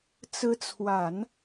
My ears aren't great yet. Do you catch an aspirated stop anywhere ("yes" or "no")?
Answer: yes